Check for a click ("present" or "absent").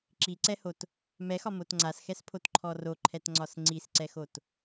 present